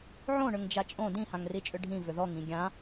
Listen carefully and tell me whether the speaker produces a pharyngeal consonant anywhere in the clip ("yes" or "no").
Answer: yes